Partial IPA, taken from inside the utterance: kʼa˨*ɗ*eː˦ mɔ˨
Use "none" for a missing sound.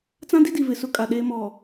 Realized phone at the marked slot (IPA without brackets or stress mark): ɗ